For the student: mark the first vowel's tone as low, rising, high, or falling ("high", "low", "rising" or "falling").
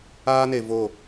high